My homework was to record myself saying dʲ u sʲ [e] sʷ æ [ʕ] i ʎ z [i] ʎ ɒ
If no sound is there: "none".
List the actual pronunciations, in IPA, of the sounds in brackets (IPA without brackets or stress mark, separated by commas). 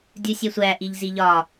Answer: e, ʔ, i